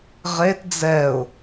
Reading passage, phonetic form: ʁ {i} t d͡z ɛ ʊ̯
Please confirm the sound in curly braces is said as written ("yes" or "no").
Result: no